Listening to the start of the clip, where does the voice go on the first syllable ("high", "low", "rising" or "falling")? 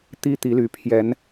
high